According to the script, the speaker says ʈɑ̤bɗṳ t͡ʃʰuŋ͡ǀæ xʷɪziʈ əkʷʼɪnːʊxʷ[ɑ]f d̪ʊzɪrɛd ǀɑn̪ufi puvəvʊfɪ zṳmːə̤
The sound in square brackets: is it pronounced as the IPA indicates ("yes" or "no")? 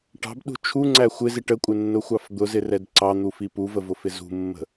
yes